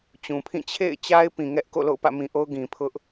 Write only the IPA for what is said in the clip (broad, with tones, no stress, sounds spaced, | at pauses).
t͡ɕ ũ˨ pʰ ĩ˦˨ t͡ɕʰ ḛ˦˨ ɪ̯ t͡ɕ a˦ ɪ̯ p ĩ˨ ŋ ɛ˦ ʔ k o̰˦˨ l o̰˦˨ ʊ̯ p ä̰˦˨ m ĩ˨ ʔ o˦ ʊ̯ ɡ ĩ˨ pʰ ʊ˦ ʔ